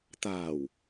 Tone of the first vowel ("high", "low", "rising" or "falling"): low